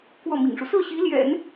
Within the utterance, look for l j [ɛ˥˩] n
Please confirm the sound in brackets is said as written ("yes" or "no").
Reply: no